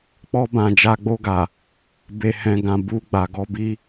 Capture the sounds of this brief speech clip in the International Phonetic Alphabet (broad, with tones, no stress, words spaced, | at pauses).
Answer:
k͡pɔ˧bã˨ d͡ʒa˧ɡ͡bo˧ɡa˨ | be˨hɛ̃˨ɡã˨ bu˧ ɡ͡ba˨ɡɔ˧bi˧